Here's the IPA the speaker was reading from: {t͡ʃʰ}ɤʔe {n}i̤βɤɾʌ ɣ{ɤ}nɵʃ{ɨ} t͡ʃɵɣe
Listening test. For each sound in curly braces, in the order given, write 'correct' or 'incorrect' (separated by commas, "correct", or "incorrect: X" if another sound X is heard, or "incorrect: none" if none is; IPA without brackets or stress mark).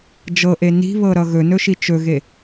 incorrect: d͡ʒ, correct, incorrect: ɵ, incorrect: i